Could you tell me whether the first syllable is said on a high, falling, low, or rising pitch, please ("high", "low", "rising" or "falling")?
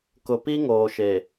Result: low